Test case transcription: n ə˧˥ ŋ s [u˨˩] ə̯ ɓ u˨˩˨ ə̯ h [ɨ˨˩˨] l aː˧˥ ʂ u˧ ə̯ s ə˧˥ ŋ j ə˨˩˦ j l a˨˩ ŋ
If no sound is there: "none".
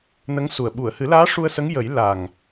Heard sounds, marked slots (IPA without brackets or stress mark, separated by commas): u˨˩, ɨ˨˩˦